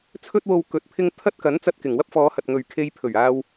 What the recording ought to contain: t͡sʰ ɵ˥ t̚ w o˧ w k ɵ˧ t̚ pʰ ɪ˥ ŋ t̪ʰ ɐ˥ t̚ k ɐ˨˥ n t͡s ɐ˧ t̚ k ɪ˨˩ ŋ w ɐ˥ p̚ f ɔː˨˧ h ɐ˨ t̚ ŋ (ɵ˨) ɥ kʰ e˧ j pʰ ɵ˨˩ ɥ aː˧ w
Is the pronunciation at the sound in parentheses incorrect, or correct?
correct